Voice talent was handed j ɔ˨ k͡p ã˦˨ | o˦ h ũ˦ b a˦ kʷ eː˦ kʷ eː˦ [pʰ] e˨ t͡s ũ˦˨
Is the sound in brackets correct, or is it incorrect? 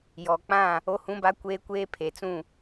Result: correct